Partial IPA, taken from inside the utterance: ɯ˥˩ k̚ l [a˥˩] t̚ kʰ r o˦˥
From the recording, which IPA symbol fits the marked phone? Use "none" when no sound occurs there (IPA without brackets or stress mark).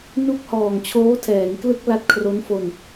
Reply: a˦˥